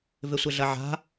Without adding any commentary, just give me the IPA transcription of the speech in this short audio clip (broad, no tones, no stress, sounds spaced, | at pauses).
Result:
v ɪ sʷ ɪ ɮ ɐ ʕ a̤